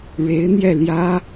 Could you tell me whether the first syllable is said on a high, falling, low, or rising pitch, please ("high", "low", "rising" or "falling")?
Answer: rising